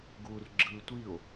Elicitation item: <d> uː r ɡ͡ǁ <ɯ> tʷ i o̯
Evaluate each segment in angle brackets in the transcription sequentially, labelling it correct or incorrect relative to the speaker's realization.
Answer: incorrect: ɡ, incorrect: ɯː

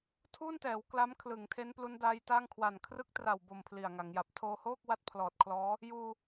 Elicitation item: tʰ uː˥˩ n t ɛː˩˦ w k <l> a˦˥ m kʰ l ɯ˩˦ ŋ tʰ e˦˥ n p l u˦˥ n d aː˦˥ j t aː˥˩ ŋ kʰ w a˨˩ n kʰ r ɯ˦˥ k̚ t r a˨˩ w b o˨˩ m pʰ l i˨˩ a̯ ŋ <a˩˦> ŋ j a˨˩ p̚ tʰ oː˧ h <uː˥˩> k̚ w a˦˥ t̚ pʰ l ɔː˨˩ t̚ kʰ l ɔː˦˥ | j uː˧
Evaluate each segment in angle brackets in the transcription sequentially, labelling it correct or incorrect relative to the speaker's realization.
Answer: correct, correct, incorrect: oː˥˩

